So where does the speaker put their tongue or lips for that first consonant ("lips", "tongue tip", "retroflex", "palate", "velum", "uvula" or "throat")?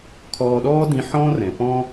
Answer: velum